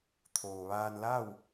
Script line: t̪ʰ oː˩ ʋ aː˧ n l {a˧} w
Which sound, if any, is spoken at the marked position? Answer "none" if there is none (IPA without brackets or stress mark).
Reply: a˥˨